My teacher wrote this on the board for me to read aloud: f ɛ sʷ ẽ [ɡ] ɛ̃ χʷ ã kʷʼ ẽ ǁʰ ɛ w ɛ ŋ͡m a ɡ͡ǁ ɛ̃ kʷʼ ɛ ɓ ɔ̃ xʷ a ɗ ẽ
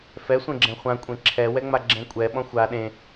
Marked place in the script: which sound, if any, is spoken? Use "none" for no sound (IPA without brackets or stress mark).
ɡ͡ǁ